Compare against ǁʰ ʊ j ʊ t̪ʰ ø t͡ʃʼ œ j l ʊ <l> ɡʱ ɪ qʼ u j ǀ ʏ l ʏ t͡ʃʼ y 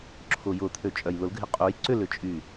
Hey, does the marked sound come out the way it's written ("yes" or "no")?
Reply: yes